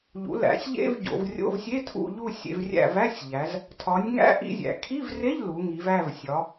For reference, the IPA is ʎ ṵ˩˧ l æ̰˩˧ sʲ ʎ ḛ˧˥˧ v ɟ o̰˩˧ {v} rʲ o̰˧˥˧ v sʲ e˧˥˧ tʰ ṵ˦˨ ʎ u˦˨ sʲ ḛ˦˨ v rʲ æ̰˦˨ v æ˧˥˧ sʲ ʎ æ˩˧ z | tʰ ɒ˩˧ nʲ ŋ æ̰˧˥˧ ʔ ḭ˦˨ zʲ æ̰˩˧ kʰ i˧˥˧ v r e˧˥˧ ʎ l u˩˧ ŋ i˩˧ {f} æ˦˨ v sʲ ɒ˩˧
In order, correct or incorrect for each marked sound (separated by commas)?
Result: correct, incorrect